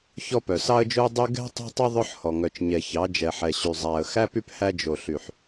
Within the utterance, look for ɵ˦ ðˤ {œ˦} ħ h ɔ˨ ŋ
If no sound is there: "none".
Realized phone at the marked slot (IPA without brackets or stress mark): œ˦